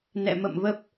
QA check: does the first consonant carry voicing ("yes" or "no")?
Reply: yes